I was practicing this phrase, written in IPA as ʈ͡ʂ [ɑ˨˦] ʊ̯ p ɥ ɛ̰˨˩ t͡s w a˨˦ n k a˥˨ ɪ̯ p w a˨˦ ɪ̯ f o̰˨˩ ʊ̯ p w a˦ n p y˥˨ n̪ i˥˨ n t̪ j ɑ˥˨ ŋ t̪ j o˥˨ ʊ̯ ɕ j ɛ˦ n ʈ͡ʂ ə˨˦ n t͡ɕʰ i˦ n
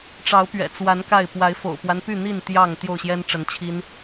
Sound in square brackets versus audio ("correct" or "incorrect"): correct